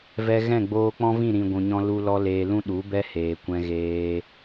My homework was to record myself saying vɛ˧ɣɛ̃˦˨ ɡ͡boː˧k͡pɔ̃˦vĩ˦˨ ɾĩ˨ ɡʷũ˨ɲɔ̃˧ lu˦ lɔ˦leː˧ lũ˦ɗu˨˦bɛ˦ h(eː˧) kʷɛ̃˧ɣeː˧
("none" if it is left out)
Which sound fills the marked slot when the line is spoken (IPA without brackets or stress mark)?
eː˨